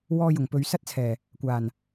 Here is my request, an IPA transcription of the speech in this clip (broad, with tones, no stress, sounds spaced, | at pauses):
w ɔː˧ j ʊ˨˩ ŋ p ɵ˨ ɥ s ɐ˥ t̚ t͡sʰ ɛː˨˩ | kʷ aː˨˩ n